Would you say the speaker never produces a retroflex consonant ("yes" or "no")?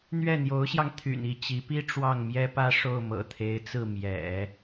no